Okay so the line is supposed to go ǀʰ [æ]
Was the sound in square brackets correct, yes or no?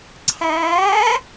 no